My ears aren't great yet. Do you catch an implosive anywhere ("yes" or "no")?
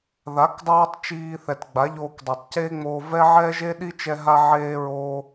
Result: yes